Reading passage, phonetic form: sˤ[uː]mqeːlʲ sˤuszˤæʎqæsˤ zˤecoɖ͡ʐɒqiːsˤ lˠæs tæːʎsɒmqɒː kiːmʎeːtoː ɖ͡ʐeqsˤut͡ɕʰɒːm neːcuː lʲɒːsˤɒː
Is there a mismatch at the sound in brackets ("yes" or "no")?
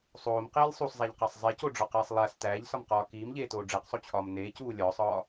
yes